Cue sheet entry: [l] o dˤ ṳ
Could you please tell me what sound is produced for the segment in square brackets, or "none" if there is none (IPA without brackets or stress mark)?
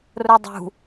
r